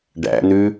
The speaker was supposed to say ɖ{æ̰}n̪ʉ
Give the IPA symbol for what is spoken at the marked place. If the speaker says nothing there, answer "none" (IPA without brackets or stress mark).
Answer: æ̰